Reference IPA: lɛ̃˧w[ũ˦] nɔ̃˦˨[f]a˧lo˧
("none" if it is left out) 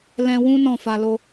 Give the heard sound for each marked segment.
ũ˦, f

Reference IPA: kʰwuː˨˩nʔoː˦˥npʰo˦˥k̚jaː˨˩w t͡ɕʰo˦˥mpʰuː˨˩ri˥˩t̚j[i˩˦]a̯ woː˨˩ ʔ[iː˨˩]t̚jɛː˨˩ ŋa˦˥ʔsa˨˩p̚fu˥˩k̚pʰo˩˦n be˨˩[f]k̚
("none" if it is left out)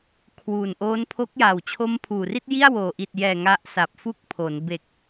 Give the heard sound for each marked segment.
i˥˩, i˨˩, none

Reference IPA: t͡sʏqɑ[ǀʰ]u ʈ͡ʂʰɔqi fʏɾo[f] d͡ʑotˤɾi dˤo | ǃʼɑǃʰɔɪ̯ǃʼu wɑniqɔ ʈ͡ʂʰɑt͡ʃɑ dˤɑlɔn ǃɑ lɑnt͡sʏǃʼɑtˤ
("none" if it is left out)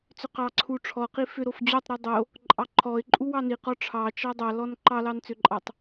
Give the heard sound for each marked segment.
ǀʰ, f

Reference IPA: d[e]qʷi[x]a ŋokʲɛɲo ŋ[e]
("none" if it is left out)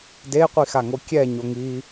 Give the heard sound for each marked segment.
e, x, i

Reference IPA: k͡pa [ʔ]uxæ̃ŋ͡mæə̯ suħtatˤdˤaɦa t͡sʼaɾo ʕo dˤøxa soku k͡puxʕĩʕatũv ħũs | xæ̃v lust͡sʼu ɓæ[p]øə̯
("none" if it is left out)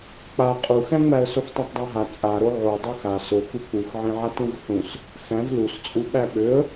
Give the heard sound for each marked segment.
qʼ, ɓ

